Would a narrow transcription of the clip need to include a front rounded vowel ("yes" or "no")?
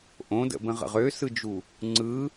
yes